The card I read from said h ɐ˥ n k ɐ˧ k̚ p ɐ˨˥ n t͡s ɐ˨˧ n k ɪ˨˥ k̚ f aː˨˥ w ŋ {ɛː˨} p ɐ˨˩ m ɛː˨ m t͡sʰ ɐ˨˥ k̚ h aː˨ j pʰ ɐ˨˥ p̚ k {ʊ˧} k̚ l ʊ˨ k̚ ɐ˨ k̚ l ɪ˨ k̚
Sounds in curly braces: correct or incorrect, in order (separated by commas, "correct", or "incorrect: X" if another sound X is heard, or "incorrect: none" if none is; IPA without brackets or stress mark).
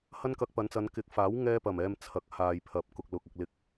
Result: incorrect: ɛː˧, incorrect: ʊ˨